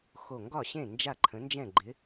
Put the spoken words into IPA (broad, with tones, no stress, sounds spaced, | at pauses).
x o˧˩ ŋ ɡ ɒ˥˩ ɕ ẽ˥˩ n d͡ʒ a˥˩ ǃʰ ə̃˩˥ n d͡ʒ ɛ̃˥˩ ɡ͡ǃ ɪ˩˥